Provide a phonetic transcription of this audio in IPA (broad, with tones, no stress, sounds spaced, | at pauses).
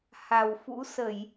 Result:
h a˨˩ w f ṵ˧˥ s ə˧˩˨ j